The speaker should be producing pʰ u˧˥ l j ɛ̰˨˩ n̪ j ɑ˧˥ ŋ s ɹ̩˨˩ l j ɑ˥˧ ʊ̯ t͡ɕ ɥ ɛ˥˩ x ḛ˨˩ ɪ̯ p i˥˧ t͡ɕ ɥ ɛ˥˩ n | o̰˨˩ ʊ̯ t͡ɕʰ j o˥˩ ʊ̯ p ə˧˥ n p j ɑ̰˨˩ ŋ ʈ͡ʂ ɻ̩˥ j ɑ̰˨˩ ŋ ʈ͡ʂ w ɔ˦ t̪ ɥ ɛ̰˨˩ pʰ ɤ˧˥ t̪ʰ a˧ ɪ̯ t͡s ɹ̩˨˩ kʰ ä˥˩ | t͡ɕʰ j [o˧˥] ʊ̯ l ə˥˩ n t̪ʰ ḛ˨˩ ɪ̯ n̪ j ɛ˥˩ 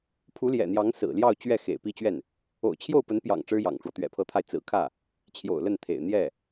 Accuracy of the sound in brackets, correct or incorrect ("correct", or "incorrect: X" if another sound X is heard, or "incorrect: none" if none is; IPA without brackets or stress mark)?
incorrect: o̰˨˩